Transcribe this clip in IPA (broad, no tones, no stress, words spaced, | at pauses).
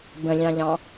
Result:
bə̃lʲɑ̃ʎɑ̃